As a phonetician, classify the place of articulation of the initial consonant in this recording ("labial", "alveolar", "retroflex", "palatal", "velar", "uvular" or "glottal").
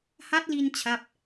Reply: glottal